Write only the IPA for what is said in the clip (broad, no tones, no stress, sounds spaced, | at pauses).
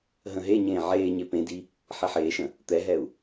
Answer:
ɦ ə̃ ɦ e ɲ ẽː ʕ eː ɲ e p ẽ d i | ħ e ħ eː ʃ ə̃ | t̪ ɛ ɦ ɛ u̯